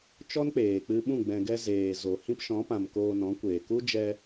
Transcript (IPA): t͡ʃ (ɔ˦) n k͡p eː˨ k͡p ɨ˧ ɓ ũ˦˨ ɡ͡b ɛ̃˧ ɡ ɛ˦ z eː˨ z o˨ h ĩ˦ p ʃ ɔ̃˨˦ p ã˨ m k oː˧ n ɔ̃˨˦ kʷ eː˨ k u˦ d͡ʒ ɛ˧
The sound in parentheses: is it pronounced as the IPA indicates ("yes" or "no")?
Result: yes